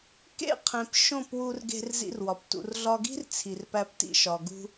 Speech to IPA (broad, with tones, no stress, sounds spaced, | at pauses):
k ḛ˦˨ qʰ ẽ˨ p ʃ õ˦˨ p w u˧ r ɡ e̤˧ r z ḭ˧ r w ɒ˨ p t ṵ˨ r ɮ ɒ˧ ɡ i̤˦ r t͡sʰ i˨ r p æ˧ p t ḭ˧ ʃ ɒ˨ ɡ ṳ˧